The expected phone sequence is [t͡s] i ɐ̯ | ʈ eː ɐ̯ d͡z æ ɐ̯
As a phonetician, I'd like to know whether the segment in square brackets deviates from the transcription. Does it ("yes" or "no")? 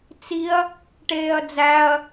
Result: no